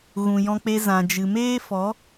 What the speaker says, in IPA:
ɣ ũ˨ j ɔ̃˧ k͡p e˧ z ã˨ d͡ʒ ɨ˨ m eː˦ f ɔ˨˦

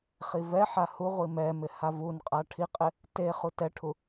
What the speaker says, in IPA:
χ i v ɛ ħ a h u ʁʷ i m ɛ m ɪ h a v u n qʼ a ʈʰ i qʼ ɪ | t e χ u t ɛ ʈʰ u

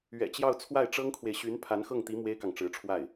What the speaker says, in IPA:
ɥ ɛ̰˨˩ t͡ɕ j ɑ˥˧ ʊ̯ t͡sʰ w a˥˩ ɪ̯ ʈ͡ʂ ɤ˥ ŋ kʰ w e˨ ɪ̯ ɕ y˧˥ n pʰ a˧˥ n x ɤ˥˩ ŋ t̪ i˧˥ m w e˥ ɪ̯ k ɑ˨ ŋ ʈ͡ʂ ɻ̩˧˥ ʈ͡ʂʰ w a˥˩ ɪ̯

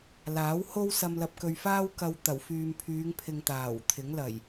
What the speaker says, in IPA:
l aː˨˥ w h o˥ w s ɐ˨ m l ɐ˨ p̚ k ɵ˨ ɥ f aː˥ w k ɐ˧ w t̪ ɐ˨˩ w f yː˨ m pʰ yː˨˧ ŋ pʰ ɪ˨ ŋ t̪ aː˨˩ w t̪ʰ ɪ˨˥ ŋ l ɐ˨˩ j

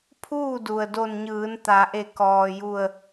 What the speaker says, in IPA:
pʰ uː˥˨ d u˩ ə̯ d o˧˩ n ɲ ɯː˩˧ n t̪ a˩˧ ʔ e˧˩ k ɔː˩ j u˧˩ ə̯

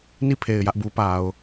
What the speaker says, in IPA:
n i˦˨ pʰ e˨ ɪ̯ j ä˦ ʔ b u˦ p a˨ ʊ̯

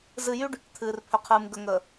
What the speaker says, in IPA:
z ɨ˨ j y˦ ɖ | t̪ʰ ɨː˨ r pʰ ʏ˨ qʰ ɨː˨ m ɡ ə˨ ŋ əː˨

